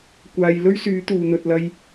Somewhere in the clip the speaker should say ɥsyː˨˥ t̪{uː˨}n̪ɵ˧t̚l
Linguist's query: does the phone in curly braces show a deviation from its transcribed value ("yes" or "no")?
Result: no